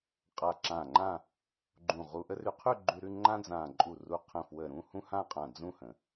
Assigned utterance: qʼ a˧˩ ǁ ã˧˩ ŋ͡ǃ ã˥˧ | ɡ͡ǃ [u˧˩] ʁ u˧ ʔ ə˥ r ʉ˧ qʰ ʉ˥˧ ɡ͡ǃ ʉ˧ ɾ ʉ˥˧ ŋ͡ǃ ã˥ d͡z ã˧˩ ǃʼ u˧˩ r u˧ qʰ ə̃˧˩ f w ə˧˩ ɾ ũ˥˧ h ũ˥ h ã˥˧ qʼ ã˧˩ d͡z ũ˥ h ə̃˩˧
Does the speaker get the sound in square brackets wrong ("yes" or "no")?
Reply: yes